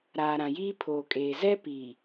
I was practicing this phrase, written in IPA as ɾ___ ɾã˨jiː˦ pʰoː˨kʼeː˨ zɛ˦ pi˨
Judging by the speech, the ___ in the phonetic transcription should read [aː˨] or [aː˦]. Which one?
aː˨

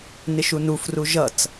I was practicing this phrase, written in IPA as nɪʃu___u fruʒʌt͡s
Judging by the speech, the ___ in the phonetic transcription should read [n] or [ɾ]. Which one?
n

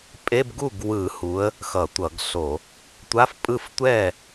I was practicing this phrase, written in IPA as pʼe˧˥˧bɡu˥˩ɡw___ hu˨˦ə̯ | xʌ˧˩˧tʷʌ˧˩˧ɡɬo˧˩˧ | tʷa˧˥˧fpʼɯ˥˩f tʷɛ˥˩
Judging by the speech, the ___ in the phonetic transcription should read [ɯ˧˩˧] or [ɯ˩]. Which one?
ɯ˧˩˧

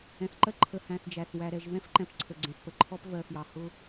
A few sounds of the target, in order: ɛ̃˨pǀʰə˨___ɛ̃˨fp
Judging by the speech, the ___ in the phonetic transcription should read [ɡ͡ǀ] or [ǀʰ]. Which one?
ɡ͡ǀ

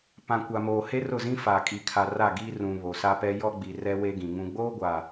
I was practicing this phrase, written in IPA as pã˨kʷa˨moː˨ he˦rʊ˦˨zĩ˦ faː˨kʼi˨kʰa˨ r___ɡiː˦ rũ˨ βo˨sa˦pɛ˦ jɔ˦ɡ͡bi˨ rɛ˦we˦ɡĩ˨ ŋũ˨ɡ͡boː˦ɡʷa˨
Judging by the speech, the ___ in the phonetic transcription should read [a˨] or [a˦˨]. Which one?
a˦˨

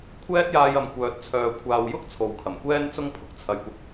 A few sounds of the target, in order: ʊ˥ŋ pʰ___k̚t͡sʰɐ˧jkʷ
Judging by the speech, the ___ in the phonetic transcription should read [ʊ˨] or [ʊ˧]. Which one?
ʊ˨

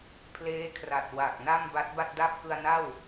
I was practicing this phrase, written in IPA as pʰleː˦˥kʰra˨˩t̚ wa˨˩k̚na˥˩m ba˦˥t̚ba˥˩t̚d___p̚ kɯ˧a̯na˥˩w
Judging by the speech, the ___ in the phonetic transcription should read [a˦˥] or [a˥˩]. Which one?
a˥˩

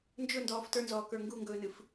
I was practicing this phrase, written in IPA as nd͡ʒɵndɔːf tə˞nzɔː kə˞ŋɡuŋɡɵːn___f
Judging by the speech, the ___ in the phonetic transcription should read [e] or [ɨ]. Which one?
ɨ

